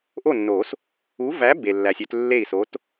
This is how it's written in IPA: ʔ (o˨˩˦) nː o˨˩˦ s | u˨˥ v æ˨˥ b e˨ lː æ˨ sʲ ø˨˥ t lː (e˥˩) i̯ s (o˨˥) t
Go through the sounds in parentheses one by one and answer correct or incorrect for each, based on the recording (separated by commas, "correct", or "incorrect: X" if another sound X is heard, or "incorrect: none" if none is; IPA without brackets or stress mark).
incorrect: o˥˩, correct, correct